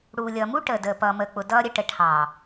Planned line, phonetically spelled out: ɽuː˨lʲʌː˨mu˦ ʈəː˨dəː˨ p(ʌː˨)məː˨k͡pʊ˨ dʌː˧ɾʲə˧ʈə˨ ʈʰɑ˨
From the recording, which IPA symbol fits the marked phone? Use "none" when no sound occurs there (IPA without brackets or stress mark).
ʌː˨